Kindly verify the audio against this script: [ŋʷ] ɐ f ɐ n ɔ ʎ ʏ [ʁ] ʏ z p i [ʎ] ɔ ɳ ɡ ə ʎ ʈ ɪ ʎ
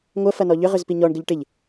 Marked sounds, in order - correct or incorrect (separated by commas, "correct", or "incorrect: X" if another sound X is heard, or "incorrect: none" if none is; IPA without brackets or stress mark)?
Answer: correct, correct, incorrect: ɲ